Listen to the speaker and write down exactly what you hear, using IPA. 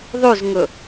ðˤ ʉ z ŋ ɵ

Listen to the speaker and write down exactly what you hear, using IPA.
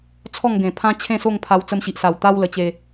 t͡sʰ ɔ˥˧ ŋ ɡ ẽ˨˩ pʰ ã˦ t͡ɕʰ ẽ˥˧ s o˥˧ ŋ pʰ a˧ w t͡s ə˧ m ɕ i˨ ʔ s a˨˩ w t̪ a˧ w l ə˧ t͡ɕ e˧

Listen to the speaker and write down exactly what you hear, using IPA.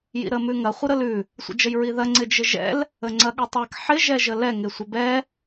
j ḭ ɾ ə m ʉ ŋ ɐ χʷ ɪ ɾ ə l ʉ | sʷ ə̰ d͡ʒ ə j ɹ i ð ɐ ŋ͡ǀ ɪ d͡ʒ ɪ ʒ ɛ̰ l | ə ŋ͡ǀ ɐ ɠ ɪ tˤ ɛ k ħ ɪ ʒ ɛ ʒ ə l ɛ ŋ ɪ sʷ ɪ b ɛ

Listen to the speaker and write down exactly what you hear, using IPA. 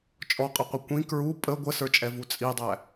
t͡ʃʼ ɔ qʼ ʌ qʷ ɪ kʷ ĩ k ɹ u pʼ ə ɡʷ ə s ə˞ t͡ʃʼ ɛ v u t͡sʼ i dˤ æ

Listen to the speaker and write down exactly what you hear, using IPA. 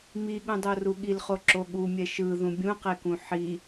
m i ɠ ũ dˤ o r u ɠ i l χ o ǁ o ɠ u mʲ ɛ ʃ ɯ ð ũ bʲ ũ q e k ũ ħ i

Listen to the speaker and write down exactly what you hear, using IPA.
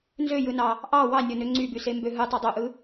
n z ø j ɯ n ɑ | ʔ ɑ w ɑ nʲ o n ø ŋ͡ǀ y b y s e m b ø ɦ ɯ tˤ ø dˤ o ʔ ɯ

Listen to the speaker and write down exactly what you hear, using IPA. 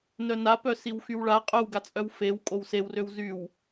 n œ n a p œ s i w x y w ɭ a qʼ œ w ɡ a t͡sʼ œ w f e w kʼ o w s e w r ø w z y w

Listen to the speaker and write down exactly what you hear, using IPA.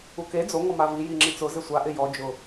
u k e d͡z o ŋ ɔ m a v i j i ŋ͡ǁ i t͡s ʊ z ɪ sʷ a ʔ ɪ j ɔ d͡ʒ ʊ

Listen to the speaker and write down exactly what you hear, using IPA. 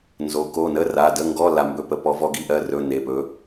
n z o˩˧ k o˩˧˩ n ə˧˥˧ r a˩˧˩ d ə˧˥˧ ŋ ɡ ɔ˧˥˧ l a˧ m b ɵ˧˥˧ p ə˨˥ p ɔ˩˧ v ɔ˧ ɡ i˧ ʔ ɜ˩˧˩ r ɵ˧˥˧ n e˩˧˩ p ɵ˨˥

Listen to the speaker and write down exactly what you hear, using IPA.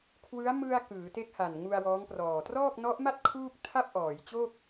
kʰ w ɯ˦˥ a̯ m ɯ˧ a̯ k ɯː˩˦ t e˦˥ k̚ h a˨˩ n ŋ u˧ a̯ w ɔː˦˥ ŋ p r ɔː˨˩ t r ɔː˥˩ k̚ n ɔ˦˥ ʔ m a˥˩ t̚ kʰ uː˥˩ k̚ tʰ a˥˩ p̚ ʔ ɔː˩˦ j t͡ɕ oː˥˩ k̚

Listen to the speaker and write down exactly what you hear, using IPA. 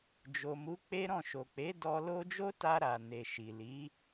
d͡ʒ o˨ m u˨˦ k͡p e˦ ɾ ɔ̃˦˨ ʃ o˨ k͡p e˨˦ d ɔ˧ l o˦ d͡ʒ o˦ t a˧ ɾ a˨ n e˨ ʃ i˨ l i˨˦

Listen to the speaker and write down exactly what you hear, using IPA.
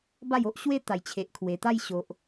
b a˥˧ j o˦ ʔ ɕ w e˦ t̪ a˨˩ j t͡ɕʰ e˨ ʔ kʰ w e˨˩ t̪ a˥˧ j ɕ o˨ ʔ

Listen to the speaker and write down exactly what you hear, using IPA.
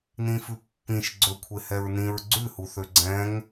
n ĩ f ʉ pː ĩ ʃ ɡ͡ǀ ɵ kʷʰ e h ɛ ɹ n ĩ ɹ ɡ͡ǀ ʉ h u θ ø ɡ͡ǀ ɛ̃ ŋ

